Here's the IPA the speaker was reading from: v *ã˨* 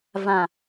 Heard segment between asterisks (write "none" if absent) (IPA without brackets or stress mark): ã˨